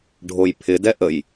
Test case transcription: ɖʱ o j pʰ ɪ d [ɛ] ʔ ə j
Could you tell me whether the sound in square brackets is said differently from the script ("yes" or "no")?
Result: no